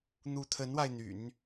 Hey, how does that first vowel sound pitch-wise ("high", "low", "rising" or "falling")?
rising